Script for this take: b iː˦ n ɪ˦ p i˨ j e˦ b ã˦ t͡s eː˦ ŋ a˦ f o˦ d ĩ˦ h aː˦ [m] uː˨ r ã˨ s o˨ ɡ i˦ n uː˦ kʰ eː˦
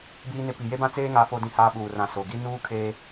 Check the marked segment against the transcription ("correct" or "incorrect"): incorrect